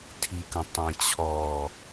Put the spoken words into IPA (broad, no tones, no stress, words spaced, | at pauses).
tʰikə̃ tˤẽt͡ɕʰɔ